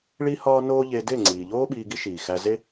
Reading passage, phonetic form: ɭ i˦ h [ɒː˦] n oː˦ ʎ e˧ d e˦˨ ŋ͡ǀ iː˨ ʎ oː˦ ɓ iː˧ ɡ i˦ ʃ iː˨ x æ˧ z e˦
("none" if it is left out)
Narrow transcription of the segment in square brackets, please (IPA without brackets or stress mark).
ɒː˦